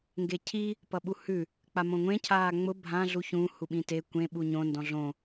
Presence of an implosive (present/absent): present